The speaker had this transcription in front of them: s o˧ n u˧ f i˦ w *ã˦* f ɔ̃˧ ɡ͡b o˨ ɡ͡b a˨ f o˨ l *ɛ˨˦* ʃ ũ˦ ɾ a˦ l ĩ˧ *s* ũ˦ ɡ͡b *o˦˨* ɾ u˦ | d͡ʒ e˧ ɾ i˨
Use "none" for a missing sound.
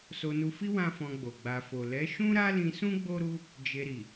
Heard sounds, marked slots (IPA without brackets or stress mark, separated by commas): ã˦, ɛ˨˦, s, o˦